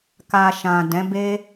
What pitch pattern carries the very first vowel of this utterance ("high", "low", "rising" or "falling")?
low